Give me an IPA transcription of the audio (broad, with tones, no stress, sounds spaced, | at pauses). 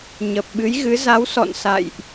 ɲ ə˨˩ p̚ ɓ ɨ˨˦ j ɣ ɨ˨˦ z a˨˦ w s ɔ̰˧˨ n s a̰˧˨ j ʔ